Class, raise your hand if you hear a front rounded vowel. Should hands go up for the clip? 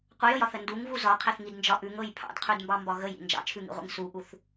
no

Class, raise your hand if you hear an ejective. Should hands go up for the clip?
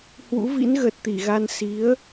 no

